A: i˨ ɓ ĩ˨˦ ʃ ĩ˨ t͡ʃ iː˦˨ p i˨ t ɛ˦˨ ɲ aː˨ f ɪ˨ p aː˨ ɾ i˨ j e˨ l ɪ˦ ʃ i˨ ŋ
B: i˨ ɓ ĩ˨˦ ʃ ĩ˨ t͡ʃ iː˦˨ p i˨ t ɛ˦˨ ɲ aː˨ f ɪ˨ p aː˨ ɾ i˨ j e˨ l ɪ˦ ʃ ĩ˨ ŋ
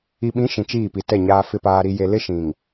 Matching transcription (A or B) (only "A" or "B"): B